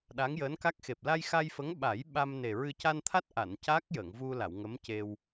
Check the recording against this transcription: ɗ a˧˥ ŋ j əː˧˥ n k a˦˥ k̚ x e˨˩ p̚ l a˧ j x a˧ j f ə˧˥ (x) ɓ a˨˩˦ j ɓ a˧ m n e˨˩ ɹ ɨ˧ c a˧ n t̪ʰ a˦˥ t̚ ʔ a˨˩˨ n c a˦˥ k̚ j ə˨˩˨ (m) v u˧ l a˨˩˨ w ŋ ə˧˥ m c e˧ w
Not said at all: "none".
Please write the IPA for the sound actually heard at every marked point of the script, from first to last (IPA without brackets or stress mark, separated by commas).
ŋ, ŋ